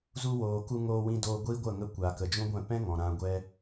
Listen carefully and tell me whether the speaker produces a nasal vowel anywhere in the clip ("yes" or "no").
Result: yes